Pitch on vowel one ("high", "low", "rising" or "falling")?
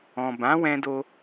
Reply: low